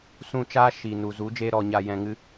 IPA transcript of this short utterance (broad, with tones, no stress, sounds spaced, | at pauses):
s ũ˧ t͡ʃ aː˦ ʃ iː˨ n u˨ z u˨˦ d͡ʒ eː˦ ɾ ɔ˧ ɲ a˧ j ɛ̃˧ ŋ ɨ˦